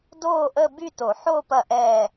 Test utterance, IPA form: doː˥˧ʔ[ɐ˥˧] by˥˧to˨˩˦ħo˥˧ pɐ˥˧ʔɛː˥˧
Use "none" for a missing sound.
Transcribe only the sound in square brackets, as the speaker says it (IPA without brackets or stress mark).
ə˥˧